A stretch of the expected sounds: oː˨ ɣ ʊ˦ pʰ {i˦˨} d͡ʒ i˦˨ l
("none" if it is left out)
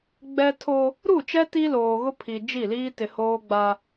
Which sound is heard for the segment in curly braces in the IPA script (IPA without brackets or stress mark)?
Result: i˨